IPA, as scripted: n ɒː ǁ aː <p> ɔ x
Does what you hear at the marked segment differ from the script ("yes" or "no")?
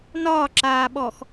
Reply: yes